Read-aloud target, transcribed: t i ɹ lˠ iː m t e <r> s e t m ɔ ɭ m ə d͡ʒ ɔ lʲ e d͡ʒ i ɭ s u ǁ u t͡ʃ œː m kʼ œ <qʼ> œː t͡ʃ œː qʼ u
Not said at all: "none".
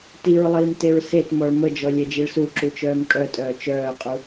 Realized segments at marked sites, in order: ɹ, tʼ

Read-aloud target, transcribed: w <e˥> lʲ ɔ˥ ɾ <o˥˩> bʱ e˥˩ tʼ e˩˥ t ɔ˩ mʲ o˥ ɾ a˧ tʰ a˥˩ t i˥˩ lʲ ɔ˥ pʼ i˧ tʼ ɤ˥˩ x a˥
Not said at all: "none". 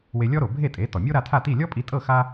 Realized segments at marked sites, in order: e˧, o˩

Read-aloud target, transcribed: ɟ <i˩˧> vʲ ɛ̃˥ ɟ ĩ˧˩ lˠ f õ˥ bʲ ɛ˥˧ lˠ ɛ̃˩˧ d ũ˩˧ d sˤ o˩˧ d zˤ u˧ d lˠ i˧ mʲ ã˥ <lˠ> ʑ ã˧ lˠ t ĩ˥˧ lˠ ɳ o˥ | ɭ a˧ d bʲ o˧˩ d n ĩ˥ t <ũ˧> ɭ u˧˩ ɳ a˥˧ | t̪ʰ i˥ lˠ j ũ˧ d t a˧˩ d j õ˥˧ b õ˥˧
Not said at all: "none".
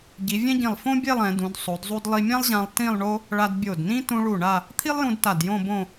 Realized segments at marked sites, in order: i˩˧, lˠ, ũ˧

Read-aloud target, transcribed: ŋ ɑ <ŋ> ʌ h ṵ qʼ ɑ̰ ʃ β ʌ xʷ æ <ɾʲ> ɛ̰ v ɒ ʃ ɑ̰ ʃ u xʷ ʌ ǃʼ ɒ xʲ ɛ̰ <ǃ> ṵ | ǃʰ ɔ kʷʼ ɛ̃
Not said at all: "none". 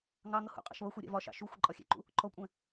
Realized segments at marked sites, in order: ŋ, ɾʲ, ǃ

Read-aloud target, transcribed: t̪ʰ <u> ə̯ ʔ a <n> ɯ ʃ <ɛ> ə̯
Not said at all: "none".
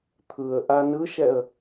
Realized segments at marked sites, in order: ɯ, n, ɛ

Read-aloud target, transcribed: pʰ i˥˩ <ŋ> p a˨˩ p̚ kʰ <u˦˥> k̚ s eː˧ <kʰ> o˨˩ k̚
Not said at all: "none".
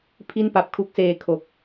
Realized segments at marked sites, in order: n, u˦˥, kʰ

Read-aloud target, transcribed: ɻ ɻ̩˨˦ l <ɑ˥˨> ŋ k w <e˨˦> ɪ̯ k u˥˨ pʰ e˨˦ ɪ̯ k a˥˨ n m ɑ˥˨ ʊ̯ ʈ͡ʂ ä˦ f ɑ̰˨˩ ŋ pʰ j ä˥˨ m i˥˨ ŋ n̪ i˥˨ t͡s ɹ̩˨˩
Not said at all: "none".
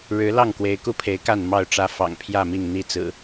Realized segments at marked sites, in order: ɑ˥˨, e˨˦

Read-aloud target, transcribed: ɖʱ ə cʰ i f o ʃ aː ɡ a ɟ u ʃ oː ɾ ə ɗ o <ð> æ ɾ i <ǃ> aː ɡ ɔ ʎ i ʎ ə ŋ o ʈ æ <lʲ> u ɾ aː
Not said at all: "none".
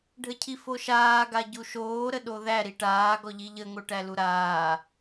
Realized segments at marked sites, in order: ð, ʈ, l

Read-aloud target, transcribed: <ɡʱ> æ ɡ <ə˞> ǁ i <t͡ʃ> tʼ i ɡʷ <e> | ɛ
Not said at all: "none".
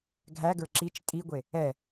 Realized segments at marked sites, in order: ɡʱ, ə˞, t͡ʃ, e

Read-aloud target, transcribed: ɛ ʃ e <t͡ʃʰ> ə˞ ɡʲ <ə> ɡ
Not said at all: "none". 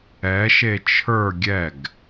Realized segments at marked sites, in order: t͡ʃʰ, ɛ

